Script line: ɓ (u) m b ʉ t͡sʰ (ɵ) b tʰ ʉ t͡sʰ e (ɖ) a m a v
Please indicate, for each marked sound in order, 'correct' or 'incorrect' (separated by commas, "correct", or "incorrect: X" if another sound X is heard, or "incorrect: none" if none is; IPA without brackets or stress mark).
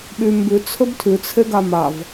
incorrect: y, correct, incorrect: ɡ